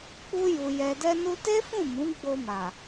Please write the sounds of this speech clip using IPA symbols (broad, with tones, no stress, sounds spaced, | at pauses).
k͡p u˧ j u˨ j ɛ˨ d ɛ˧ n u˧ t e˦ f ũ˦˨ m ũ˨˦ ɡ͡b o˧ m a˨